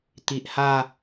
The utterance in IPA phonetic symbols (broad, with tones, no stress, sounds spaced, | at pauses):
t̪ i˨ ʔ h a˥˧